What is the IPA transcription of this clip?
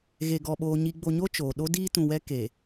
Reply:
ɣ e˨ ɡ ɔ˨ ɓ oː˨ ɲ i˨ ɡ͡b o˨ ɲ o˦ t͡ʃ oː˨ ɗ o˦ d iː˦ t ũ˨ w ɛ˦ k e˨

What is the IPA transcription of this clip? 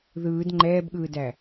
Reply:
ð ɯː d ŋ͡ǃ ɛː b ɠ ɯː d æ

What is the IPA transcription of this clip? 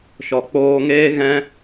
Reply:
ʃ ɔ˨ k͡p oː˧ ŋ eː˦ ɣ ɛ̃˦

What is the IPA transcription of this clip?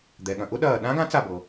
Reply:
d̪ ɛ˩ ɠ ɐ̃˩ ʔ ʊ˧˥ ɗ ɐː˧˩ ɗ ã˧˥ ɡ ã˧˥ t͡s a˧˩ b ɤ˩

